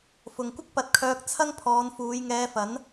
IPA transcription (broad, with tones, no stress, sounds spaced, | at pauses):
f ʊ˨ ŋ kʷ ɪ˥ k̚ p ɐ˧ t̚ kʰ œː˧ k̚ t͡sʰ ɐ˥ ŋ pʰ ɔː˨˧ n f uː˨˧ j ŋ ɛː˧ f ɐ˨˥ n